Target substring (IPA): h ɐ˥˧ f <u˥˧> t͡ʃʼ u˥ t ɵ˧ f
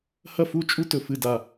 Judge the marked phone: correct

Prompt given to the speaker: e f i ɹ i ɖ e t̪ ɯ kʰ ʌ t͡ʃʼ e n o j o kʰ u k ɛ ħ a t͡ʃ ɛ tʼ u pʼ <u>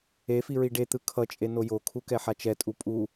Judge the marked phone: correct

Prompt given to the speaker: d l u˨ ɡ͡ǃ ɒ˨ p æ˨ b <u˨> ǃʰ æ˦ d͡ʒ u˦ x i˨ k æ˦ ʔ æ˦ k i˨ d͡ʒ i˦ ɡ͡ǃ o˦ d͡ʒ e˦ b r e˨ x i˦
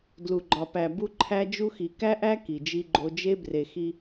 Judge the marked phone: incorrect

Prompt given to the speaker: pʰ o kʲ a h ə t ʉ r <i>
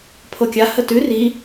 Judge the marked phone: correct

